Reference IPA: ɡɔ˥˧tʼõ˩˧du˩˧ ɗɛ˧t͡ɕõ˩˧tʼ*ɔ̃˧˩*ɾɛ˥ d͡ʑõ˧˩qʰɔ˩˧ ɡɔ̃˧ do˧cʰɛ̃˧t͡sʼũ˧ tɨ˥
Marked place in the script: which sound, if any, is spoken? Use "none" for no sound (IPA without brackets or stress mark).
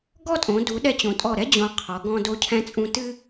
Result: ɔ˧˩